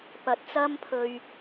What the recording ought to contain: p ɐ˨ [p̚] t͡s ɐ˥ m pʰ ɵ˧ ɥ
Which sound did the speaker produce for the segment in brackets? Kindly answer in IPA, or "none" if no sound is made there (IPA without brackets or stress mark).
t̚